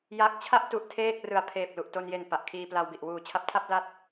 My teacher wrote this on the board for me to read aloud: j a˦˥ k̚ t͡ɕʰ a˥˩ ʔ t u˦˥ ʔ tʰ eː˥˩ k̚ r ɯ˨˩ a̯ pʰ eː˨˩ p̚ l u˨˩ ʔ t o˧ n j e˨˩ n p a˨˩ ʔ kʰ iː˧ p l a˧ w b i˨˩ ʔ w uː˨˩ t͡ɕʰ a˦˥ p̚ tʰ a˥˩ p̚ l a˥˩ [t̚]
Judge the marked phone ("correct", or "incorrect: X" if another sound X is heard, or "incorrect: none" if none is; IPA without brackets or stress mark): correct